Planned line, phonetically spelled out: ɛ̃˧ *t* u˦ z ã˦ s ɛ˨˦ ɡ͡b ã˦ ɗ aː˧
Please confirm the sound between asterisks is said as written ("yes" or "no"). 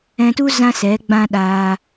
yes